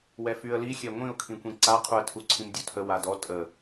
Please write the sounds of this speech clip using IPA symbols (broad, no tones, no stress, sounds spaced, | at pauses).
w ɛ f y ə̯ l i xʲ ɛ ŋʷ ĩ ʊ̯ kʰ ĩ kʷ ĩ ǀ a qʰ u ə̯ tʰ u ǀʰ ĩ m dʲ u tʰ ə w a d ɔ tʼ ə